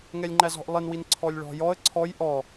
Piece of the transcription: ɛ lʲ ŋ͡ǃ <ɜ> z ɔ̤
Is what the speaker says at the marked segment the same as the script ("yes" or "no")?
no